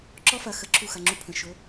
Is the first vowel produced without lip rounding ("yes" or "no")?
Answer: no